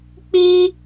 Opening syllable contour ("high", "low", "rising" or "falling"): high